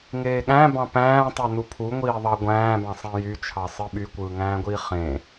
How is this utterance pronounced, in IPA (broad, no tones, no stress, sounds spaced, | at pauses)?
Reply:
ŋ eː ɠ æ̃ b ɑ̃ p æ̃ː tˤ ø n u pʰ u ŋʷ iː ðˤ ɑ ɡʷ æ̃ː b ɑ̃ sˤ ẽ j y t͡ʃʰ ɑ sˤ ɯ ɓ y kʷ ɯː ŋ æ̃ː ɡʷ iː χ ẽ